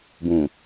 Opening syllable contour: low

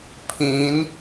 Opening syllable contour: rising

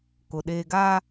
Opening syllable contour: low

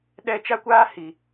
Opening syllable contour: high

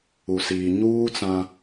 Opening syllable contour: low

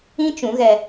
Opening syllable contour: high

